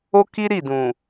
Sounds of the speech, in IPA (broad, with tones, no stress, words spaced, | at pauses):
o˦ki˦ɾi˦˨ dũ˨